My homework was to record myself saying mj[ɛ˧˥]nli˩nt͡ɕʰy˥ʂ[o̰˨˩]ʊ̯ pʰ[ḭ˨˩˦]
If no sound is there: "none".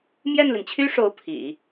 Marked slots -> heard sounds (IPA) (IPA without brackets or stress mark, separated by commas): ɛ˥˩, o˧˥, ḭ˨˩˦